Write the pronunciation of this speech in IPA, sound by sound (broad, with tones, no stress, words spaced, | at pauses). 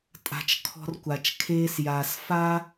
tʼa̤˨t͡ʃ kʰɔ̤˦r kʷa˨t͡ʃkʰeː˦sjaː˨s fa˦